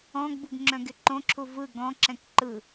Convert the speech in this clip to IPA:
ɔ̃ ɡ b u ɡ ŋ͡ǁ œ̃ ɡ ɪ ǃ õ ǁʰ u v ɯ ɡ ɔ̃ ǁ ɛ̃ k ǃ ɯ

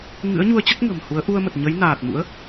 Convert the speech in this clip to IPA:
ŋ ɨ̰˧˥ ə̯ ɲ u˧ ə̯ t͡ɕ ə˦˥ t̚ ŋ ə̤˨˩ m h u˨˦ ə̯ ʔ u˧ ə̯ m ə˨˩ t̚ ɲ ə˨˦ j n aː˨˩ t̚ m ṵ˧˥ ə̯

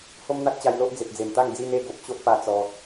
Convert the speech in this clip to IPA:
h o˦ m n̪ a˦ t̚ t͡ɕ a˧ j l o˦ ʔ d͡z e˨ p̚ d͡z e˨˩ m t̪ a˥˧ ŋ d͡z i˧ n e˧ ɡ o˨ p̚ ɕ o˦ ʔ p a˧ t͡s ɔ˧

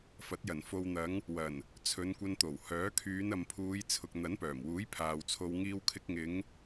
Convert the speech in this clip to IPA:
f ɐ˨˥ t̚ j ɐ˨˩ n f o˨ w n̪ ɐ˨˧ ŋ | w ɐ˨˩ n | t͡sʰ ɵ˨˧ n kʷ ɐ˧ n t̪ o˨˩ w h œː˨˥ kʰ yː˨˧ n ɐ˨ m pʰ uː˨˧ j t͡sʰ ʊ˨ k̚ n̪ ɐ˨˥ n p œː˨˩ m w uː˨˥ j pʰ aː˨ w t͡sʰ o˧ w ŋ iː˧ w kʰ ɪ˧ k̚ ŋ ɪ˨˧ ŋ

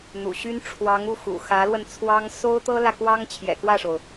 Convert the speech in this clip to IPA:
n̪ ṵ˨˩ ɕ y˥ n ʈ͡ʂʰ w ɑ˧˥ ŋ u˥˩ x ṵ˨˩ x ä˧˥ l w ə˧ n t͡sʰ w ɑ˥ ŋ s o˥ ʊ̯ t̪ ɤ˥ l ä˨ k w ɑ˥ ŋ t͡ɕʰ j ɛ̰˨˩ k w ä˥˩ ʂ o˩ ʊ̯

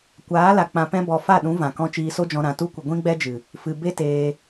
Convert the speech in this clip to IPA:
kʷ aː˨˦ l a˨ k͡p ã˧ p ɛ̃˦ b ɔ˧ f a˦˨ ɗ ũ˨˦ v ã˨ k ɔ̃˧ t͡ʃ iː˧ s o˦ d͡ʒ ɔ̃˧ ɾ ã˨ t u˧ kʷ ə˨ ɡʷ ĩ˦ ɡ͡b ɛ˦ d͡ʒ ɨ˨ | f ɨ˨ b e˦ t eː˧

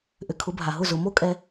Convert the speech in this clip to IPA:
ʔ ʏ˨ kʰ ʊ˨˦ bʱ a˨ ɦ ʊ˦˨ z ʊ˧ m o˦ kʼ ɛ˧

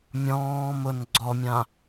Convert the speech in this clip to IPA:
mʲ ɔ̃ː m ʊ n ɡ͡ǀ ɔ mʲ ã

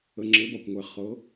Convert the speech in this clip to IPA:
ə˩ ŋ͡ǁ ɘ˩˧ b ɒ˩ kʷ ŋʷ ɛ˩ χ ɤ˩˧

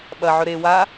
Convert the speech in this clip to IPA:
ɓ ɐ ʕ ɵ ɾ e w a

